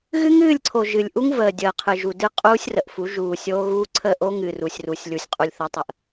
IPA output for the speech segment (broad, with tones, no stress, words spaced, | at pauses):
ɣɨ˦ŋɨː˦˨lʲǀʰo˨ ʒɨ˨lʲʔu˦ŋ vəː˨dʲəː˨qʰɨ˨ ʒu˨ dɨ˦qʼuː˦sʲrə˨ʔfu˨˦ ʒuː˨ sʲoː˦ɣuː˦ ǀʰə˦˨ʔo˦ŋɨ˨ ru˨sʲ ru˨sʲlʲu˨sʲqʼu˨lʲθə˨˦ tˤə˨ʔ